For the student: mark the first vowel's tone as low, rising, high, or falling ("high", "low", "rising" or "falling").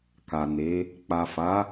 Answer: low